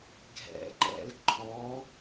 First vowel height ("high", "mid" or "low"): mid